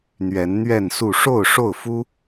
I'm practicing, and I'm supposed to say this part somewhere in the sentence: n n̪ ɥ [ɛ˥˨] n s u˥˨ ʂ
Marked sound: correct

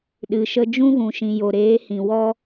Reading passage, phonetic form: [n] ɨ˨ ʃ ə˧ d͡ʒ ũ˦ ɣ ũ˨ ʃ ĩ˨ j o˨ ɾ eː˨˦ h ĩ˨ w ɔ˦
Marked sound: incorrect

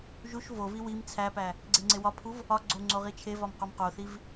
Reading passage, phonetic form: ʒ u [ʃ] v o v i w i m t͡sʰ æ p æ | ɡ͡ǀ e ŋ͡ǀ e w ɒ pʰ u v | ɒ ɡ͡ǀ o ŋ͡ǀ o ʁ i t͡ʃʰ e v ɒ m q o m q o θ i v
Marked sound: correct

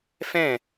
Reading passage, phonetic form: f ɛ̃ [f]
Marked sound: incorrect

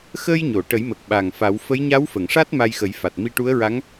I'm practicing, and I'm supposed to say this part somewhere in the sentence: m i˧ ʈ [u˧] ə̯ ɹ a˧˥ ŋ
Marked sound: incorrect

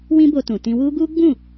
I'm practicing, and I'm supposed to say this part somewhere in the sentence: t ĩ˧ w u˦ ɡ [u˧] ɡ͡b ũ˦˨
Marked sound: incorrect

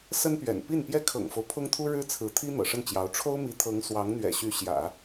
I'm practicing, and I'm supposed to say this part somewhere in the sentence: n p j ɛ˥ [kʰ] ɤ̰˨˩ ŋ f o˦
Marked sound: correct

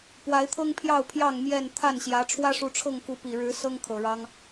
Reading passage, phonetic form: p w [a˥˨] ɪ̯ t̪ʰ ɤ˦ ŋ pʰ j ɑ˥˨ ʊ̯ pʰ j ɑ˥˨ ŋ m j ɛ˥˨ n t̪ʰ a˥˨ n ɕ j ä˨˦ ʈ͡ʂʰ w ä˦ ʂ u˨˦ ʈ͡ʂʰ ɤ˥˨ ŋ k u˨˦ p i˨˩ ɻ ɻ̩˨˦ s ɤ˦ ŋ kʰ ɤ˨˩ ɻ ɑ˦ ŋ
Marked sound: incorrect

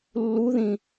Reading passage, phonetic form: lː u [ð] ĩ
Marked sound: correct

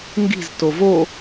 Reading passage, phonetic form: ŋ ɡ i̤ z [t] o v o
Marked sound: correct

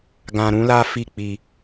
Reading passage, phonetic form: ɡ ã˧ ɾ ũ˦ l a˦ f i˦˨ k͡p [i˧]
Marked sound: correct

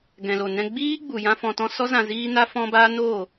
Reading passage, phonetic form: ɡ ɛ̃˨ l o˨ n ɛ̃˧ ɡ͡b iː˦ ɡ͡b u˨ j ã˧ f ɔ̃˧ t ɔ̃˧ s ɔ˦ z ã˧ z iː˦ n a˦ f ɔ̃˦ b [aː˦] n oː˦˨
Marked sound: correct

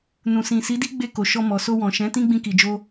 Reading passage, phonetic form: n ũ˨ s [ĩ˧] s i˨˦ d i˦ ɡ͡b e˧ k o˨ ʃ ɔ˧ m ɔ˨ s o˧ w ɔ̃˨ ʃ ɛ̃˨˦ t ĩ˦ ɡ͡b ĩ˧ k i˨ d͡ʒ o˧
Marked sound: incorrect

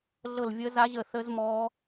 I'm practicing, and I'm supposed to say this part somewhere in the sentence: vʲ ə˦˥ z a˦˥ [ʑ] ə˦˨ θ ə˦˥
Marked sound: correct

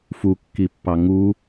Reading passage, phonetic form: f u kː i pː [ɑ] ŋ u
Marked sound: correct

